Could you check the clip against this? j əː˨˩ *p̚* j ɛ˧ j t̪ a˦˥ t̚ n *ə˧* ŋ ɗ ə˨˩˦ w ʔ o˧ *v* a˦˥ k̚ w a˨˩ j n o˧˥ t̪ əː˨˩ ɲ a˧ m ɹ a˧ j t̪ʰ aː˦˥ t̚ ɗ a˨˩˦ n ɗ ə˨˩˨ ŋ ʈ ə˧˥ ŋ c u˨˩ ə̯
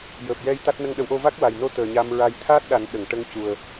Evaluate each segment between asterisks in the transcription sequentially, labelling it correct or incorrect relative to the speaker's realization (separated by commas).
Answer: correct, correct, correct